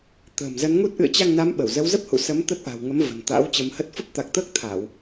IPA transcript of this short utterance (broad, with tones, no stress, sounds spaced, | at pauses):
t̪ ə̤ː˨˩ m z ə˨˦ n ŋ u˦˥ t̚ ʔ ɨ̰˧˨ ə̯ t͡ɕ a˧ ŋ n a˨˦ m ɓ ə˧˩ w z ə˨˦ w z ə˦˥ p̚ h ṵ˧˨ s ə˨˦ m t̪ ə˦˥ t̚ ʔ a̤˨˩ w ŋ ə˨˦ m v ə̤˨˩ n t̪ a̰˧˥ w t͡ɕ ə˨˦ m h ə˦˥ t̚ f ə˦˥ p̚ t̪ a˨˩ k̚ t̪ əː˦˥ k̚ t̪ʰ a˧˩˨ w